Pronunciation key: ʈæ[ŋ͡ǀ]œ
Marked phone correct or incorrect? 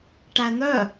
incorrect